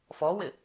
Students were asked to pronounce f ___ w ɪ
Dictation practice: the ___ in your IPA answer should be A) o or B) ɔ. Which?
B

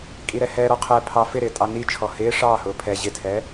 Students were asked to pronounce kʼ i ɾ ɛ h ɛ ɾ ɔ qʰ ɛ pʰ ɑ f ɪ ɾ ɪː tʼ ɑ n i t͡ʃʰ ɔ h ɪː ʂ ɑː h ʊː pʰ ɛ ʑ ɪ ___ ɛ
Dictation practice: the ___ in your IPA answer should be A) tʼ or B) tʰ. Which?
B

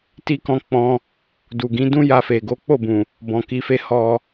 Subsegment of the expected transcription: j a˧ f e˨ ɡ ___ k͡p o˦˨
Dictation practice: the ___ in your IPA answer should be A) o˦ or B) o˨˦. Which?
B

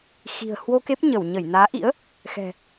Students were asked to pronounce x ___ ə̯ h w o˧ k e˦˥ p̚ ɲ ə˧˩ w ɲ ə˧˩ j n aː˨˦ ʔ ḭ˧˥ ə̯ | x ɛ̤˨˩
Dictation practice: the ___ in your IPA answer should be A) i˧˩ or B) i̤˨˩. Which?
B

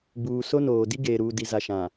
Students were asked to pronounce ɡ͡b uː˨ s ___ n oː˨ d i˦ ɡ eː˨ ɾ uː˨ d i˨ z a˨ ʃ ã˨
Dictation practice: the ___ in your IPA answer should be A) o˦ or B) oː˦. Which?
A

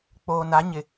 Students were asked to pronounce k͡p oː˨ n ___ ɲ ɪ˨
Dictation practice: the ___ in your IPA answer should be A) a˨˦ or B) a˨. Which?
A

